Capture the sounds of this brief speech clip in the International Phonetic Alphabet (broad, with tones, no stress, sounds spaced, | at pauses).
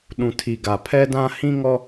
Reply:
ɗ ũ˨ tʰ i˨ ɡ a˨ pʰ ɛ˦ d ã˦ h ĩ˦ ŋ ɔ˦